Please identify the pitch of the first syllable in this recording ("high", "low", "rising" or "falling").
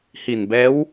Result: low